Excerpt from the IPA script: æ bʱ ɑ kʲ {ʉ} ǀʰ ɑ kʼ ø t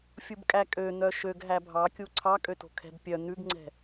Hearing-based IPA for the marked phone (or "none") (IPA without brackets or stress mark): u